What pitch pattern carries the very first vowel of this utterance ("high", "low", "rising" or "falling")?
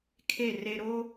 falling